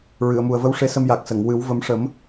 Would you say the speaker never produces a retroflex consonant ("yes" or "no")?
no